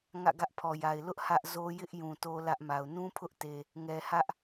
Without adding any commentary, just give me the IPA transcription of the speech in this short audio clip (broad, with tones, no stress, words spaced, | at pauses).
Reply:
ŋä̰˦˨ɡä˦ʔpʰɔ˨ja˨ɪ̯ lʊ˦ʔ hä˦ʔzo˦ jɪ˦ʔ jũ˨to˦lä˦ʔma˨ʊ̯ nũ˦pʰʊ˦ʔte˨ | ŋɛ˨hä˦ʔ